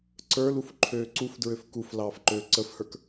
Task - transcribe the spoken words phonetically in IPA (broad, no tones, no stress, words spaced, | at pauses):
ǀə˞luf ǃʰøːǀufdɹøf kuflɑːf ǃøːǀəfhə˞k